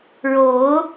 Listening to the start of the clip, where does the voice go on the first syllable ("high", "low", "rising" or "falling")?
rising